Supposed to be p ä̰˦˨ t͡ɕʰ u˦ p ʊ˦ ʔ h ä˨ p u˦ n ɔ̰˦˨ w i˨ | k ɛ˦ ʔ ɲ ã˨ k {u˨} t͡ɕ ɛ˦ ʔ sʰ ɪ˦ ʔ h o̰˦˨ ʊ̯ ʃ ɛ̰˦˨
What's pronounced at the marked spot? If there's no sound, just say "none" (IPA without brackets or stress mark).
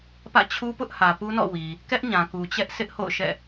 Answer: u˨